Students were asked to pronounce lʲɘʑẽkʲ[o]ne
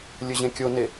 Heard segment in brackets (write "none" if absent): o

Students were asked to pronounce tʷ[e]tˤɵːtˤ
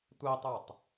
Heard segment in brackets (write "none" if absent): i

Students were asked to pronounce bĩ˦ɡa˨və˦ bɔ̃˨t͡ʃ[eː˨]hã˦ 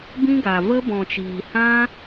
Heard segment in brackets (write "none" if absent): iː˨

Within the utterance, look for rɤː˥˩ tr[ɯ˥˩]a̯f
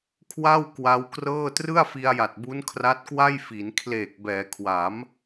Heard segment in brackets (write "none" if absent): ɯ˥˩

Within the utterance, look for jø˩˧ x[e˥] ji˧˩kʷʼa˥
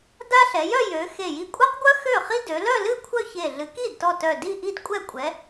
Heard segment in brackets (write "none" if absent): e˧˩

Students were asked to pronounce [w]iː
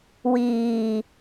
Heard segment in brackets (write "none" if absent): w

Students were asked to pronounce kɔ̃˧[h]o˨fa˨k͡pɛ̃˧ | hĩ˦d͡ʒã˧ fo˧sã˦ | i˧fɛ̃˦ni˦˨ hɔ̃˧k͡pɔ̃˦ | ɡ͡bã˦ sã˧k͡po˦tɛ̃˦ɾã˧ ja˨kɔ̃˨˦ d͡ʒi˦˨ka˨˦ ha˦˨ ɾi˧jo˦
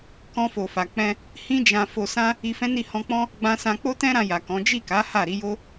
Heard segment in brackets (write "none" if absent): f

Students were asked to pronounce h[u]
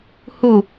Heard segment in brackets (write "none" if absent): u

